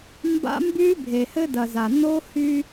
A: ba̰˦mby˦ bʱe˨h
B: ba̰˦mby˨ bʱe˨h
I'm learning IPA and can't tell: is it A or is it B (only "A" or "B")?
A